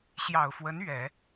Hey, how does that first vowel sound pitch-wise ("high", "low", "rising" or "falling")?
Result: low